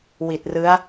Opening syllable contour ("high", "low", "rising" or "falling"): low